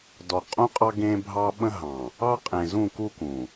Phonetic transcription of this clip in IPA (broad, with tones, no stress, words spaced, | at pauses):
dɔ˨qʼũ˦qʼɑ˦ ɡẽ˦bʱɑ˦ ɓə̃˦ɦɑ̃˨ | ɑ˦qʼẽ˨zũ˦˨ku˦ kũ˨